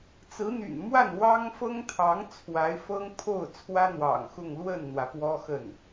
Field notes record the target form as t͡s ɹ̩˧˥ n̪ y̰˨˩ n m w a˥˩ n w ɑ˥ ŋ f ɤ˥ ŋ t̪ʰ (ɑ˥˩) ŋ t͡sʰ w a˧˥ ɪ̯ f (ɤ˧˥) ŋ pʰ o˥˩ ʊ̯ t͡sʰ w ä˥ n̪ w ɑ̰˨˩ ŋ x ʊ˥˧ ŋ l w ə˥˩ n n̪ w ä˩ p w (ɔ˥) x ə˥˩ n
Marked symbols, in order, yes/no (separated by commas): no, no, yes